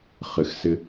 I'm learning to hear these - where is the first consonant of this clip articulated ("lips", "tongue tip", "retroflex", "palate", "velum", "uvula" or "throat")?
uvula